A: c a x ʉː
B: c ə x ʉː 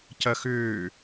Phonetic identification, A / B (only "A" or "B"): B